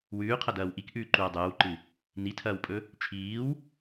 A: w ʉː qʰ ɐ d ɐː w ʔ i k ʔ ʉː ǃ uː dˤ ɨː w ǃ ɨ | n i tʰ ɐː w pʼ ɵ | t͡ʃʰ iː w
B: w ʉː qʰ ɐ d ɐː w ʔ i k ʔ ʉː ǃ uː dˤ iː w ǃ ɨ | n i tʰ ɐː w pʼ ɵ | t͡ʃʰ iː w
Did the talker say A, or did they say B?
A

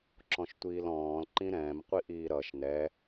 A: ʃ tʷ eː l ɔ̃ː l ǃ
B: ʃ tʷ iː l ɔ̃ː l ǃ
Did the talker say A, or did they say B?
B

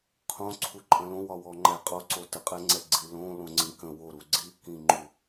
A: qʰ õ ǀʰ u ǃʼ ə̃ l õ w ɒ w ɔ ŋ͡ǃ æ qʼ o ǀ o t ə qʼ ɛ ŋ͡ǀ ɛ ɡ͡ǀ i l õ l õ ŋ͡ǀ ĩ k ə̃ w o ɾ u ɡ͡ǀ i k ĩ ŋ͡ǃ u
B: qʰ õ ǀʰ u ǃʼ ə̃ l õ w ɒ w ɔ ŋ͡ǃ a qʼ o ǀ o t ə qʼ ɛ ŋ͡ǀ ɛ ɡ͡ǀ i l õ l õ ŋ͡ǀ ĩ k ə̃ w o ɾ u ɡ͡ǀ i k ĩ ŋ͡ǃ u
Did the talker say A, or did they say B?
A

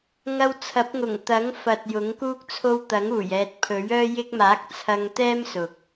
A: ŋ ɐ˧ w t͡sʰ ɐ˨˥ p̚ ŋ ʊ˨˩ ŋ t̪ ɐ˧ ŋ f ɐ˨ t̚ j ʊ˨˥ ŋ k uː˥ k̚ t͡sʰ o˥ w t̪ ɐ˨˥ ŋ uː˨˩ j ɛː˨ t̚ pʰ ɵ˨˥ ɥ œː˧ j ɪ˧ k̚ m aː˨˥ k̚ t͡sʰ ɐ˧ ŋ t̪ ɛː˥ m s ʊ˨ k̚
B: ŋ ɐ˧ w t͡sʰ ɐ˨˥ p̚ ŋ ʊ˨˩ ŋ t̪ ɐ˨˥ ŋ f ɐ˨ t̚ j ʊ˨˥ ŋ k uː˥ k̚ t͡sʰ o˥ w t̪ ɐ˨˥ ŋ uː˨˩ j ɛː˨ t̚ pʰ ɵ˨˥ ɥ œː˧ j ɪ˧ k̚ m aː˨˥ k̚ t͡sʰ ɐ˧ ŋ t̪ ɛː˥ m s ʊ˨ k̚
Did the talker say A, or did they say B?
B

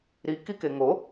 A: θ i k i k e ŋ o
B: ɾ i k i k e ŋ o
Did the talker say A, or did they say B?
B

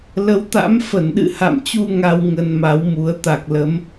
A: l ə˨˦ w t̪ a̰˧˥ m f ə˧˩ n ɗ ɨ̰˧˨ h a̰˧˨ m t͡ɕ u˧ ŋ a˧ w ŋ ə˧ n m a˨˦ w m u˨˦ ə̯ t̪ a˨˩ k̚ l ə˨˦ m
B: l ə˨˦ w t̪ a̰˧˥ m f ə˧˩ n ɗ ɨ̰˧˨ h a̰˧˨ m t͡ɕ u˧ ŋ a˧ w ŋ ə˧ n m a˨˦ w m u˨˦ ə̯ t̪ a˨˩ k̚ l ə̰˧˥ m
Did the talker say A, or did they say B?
A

